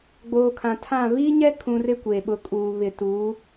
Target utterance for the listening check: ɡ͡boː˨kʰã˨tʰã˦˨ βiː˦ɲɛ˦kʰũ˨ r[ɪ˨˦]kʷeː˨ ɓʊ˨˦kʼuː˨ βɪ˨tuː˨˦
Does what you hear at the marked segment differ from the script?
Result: yes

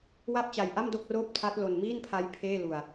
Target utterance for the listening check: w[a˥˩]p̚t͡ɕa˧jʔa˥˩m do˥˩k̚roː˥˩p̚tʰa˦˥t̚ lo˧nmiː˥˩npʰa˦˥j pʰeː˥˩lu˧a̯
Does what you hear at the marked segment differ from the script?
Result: no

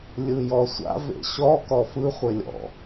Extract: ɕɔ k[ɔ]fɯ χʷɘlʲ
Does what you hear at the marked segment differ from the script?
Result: no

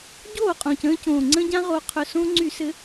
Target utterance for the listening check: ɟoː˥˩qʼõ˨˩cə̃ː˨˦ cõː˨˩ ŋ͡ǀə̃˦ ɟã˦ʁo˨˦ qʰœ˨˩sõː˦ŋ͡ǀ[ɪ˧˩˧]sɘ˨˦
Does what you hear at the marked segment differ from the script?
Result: yes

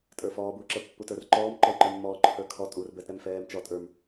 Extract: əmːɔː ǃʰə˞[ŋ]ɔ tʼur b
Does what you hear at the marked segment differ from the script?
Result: yes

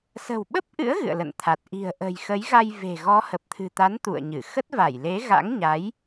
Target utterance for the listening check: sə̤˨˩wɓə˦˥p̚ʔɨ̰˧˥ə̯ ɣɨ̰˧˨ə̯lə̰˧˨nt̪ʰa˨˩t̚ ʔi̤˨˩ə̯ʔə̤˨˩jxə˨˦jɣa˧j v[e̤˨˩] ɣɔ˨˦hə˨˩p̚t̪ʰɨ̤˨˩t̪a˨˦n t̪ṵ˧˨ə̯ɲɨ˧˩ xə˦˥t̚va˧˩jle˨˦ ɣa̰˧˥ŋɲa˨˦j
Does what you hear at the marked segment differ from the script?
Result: no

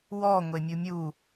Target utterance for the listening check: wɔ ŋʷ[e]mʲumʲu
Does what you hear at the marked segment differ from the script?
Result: no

